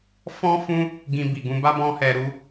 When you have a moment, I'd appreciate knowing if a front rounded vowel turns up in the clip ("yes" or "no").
no